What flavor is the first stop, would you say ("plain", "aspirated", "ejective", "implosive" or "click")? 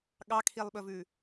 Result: implosive